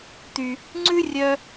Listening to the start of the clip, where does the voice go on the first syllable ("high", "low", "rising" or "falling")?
low